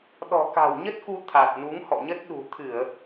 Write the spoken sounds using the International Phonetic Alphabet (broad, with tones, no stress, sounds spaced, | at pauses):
ɗ ɔ̤˨˩ k a̤˨˩ w ɲ ə˦˥ t̚ k u˧ t̪ʰ a˨˩ t̚ n u˨˦ ŋ h ɔ̰˧˨ ɲ ə˦˥ t̚ ɗ ṳ˨˩ t̪ʰ ɨ˧˩˨ ə̯